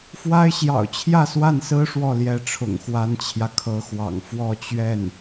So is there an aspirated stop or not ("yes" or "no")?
yes